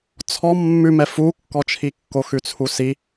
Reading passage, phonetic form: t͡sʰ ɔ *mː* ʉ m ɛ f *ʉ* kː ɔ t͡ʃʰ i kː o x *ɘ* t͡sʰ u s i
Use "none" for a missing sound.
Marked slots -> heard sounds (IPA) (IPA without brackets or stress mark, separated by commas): mː, u, ʉ